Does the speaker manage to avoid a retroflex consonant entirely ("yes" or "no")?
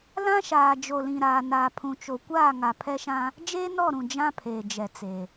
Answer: yes